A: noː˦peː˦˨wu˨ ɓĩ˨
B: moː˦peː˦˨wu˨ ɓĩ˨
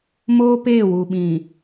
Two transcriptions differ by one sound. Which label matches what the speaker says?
B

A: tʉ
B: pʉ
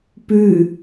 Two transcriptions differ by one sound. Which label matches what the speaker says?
B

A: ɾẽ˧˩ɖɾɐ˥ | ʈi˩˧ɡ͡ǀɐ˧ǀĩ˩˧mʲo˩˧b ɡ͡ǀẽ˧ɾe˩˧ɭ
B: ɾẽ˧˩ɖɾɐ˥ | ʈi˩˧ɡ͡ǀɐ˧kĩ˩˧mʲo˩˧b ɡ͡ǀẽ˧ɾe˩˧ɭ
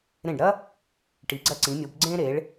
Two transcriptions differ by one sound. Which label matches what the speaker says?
A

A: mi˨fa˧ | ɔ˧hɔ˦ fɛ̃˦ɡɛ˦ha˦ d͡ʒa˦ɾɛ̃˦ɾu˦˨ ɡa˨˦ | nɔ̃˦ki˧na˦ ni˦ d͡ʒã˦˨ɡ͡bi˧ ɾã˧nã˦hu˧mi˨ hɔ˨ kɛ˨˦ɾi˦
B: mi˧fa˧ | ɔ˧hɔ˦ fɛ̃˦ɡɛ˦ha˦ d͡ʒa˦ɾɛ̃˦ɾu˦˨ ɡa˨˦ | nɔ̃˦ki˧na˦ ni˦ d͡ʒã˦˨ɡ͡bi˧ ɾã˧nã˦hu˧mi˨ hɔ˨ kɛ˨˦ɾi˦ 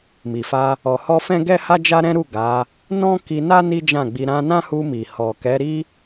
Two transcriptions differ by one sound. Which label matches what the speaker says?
A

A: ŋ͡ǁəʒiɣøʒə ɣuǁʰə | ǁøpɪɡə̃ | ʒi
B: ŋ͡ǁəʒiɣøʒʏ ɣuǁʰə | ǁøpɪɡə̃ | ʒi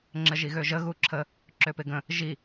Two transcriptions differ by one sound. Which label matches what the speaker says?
A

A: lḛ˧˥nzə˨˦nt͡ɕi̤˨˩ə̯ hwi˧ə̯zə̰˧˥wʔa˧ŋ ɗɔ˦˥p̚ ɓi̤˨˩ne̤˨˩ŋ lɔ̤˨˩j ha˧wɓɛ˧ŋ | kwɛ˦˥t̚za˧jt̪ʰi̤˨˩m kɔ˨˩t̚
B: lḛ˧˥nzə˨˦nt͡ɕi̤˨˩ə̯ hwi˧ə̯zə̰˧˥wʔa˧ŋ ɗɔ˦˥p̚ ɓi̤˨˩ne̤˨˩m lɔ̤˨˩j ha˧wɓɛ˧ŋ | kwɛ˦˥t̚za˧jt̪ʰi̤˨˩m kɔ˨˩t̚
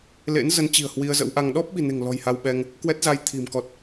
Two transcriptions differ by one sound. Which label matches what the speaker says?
A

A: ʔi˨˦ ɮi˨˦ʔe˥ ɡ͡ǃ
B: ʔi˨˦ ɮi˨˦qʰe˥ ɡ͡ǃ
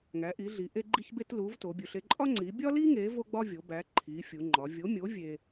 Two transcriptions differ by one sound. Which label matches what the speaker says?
A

